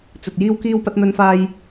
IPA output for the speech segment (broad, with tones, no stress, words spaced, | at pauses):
t͡sɵ˨t̚jiː˥wkiː˥wpɐ˥t̚ n̪ɵ˧nfaː˧j